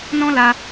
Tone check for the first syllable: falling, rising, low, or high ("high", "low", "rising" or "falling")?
high